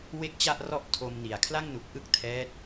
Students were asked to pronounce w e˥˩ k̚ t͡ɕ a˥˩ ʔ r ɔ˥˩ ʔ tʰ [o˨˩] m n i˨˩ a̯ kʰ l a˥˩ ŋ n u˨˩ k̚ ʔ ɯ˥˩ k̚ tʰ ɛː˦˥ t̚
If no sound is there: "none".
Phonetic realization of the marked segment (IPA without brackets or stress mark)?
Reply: o˧